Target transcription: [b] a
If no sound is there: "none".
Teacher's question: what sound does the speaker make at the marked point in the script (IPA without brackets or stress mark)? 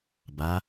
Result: b